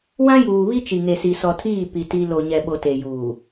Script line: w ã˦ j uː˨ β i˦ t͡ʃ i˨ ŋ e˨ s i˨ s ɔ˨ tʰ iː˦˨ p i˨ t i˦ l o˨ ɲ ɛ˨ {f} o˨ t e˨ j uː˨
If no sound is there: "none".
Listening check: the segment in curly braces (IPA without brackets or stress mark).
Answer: ɓ